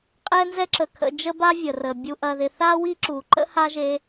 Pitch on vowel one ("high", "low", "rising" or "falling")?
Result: high